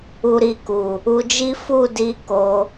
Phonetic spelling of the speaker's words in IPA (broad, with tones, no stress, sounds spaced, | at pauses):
u˨ ɾ i˨ k u˨ | u˧ d͡ʒ i˦ f u˦˨ d i˧ k o˧